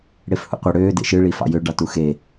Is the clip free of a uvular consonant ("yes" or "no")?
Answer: no